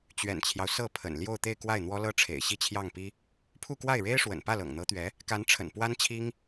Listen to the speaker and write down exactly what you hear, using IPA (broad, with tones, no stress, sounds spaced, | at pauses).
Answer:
t͡ɕ ɥ ɛ̰˨˩ n t͡ɕʰ j ɑ˦ ʊ̯ s ɤ˥˩ pʰ ə̰˨˩ n l j o˥˧ ʊ̯ t̪ e˥˧ ɪ̯ k w a˥˩ ɪ̯ n̪ w ɔ˥ l ɤ˥ ʈ͡ʂʰ ḛ˨˩ ɪ̯ ɕ i˥˧ t͡ɕʰ j ɑ˥˩ ŋ p i˥ | pʰ u˥˧ k w a˥˩ ɪ̯ ɻ e˥ ɪ̯ ʂ w ə̰˨˩ n p ä˥˩ l ɤ̰˨˩ ŋ n̪ ɤ˧˥ t̪ ɥ ɛ˧˥ | k a˧˥ n ʈ͡ʂʰ ə̰˨˩ n p w a˥ n t͡ɕʰ i˥ ŋ